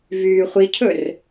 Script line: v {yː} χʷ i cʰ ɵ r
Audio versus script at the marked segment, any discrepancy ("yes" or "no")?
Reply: no